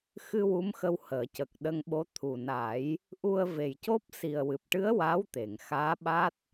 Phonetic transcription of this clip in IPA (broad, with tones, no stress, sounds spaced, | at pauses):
x ɨ˧ w u˧˥ m x ə˧ w h əː˨˩˨ c ə˨˩ k̚ ɗ ə˧ ŋ ɓ o˧˥ t̪ʰ u˨˩ n a˨˩˦ j | ʔ u˧ ə̯ v e˨˩ j c o˦˥ p̚ s i˨˩ ə̯ w ɨ˨˩ p̚ ʈ ɨ˧˥ ə̯ w a˧˥ w t̪ e˨˩˨ ŋ x aː˧˥ ɓ a˦˥ t̚